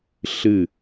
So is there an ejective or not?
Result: no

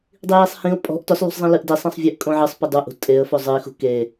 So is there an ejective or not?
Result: yes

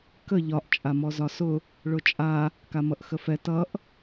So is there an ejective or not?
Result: yes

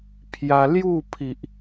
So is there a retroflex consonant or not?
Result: no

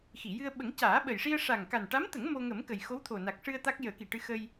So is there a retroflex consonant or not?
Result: yes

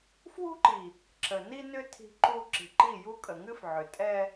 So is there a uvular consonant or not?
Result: no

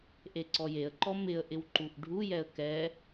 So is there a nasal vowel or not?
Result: no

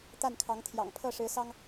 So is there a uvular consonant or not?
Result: no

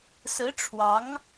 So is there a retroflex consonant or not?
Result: yes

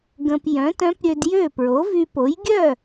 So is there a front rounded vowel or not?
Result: yes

